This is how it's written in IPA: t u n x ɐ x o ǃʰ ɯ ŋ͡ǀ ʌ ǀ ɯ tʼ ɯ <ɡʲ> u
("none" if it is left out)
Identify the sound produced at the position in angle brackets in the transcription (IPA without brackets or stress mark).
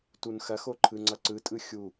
xʲ